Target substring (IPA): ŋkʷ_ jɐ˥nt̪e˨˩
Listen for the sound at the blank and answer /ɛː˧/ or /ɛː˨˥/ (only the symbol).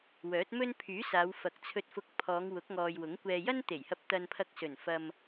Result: ɛː˧